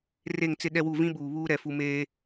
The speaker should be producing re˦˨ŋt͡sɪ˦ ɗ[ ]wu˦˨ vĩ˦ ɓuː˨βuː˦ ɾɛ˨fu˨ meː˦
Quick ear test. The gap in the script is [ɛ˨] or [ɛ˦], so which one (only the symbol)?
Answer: ɛ˦